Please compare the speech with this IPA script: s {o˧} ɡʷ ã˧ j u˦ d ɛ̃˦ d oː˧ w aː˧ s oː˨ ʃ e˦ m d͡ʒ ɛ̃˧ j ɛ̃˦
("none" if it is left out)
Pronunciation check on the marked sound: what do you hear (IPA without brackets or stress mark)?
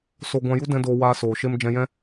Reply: o˧